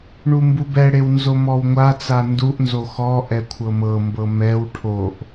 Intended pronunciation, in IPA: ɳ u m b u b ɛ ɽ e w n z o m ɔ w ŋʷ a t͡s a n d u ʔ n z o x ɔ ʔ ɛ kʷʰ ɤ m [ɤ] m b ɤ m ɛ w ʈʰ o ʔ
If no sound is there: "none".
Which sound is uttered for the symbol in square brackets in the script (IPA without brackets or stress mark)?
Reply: ɤ